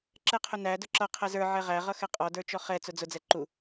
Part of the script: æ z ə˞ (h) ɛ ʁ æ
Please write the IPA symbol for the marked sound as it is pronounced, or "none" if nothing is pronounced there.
ʕ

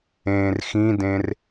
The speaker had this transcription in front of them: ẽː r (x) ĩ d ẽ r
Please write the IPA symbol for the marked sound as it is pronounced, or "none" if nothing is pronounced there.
x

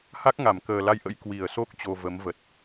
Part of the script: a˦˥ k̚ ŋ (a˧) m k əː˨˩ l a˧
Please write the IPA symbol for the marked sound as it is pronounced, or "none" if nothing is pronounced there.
a˧˩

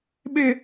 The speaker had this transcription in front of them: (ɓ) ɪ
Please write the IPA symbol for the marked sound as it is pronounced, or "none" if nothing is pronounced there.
ɓ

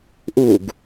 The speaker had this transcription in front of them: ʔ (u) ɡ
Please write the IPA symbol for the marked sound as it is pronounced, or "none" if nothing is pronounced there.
u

